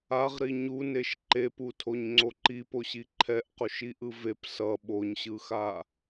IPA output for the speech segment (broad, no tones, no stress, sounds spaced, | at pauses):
a ʁ ɾ i ɲ u n e ʃ ǃ e p u tʰ o ɲ ŋ͡ǀ o ǃ i p o ɕ i ǃʰ ɛ ʔ q o ʃ i ʔ ɯ v e p s ʌ ɓ o ɲ ɕ ɯ x a